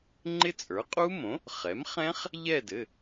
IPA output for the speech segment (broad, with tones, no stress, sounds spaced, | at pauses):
ŋ͡ǃ ɪ˦˥ t͡sʼ ə˞˩˥ qʼ u˦˥ m õ˩˥ | χ ɛ˩˥ m χ ɛ̃˦˥ χ | ʎ ɛ˦˨ d ɘ˩˧˩